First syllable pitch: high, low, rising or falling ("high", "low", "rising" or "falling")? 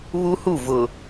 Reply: high